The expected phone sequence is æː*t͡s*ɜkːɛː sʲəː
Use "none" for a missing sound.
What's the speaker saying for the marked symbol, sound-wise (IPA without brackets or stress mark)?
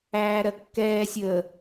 ɾ